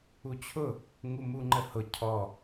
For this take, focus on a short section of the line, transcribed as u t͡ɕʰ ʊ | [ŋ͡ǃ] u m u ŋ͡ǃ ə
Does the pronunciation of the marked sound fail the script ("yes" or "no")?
yes